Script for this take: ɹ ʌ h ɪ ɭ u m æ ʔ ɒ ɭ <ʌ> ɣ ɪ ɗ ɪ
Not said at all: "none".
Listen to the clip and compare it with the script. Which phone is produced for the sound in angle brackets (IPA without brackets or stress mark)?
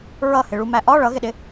ʌ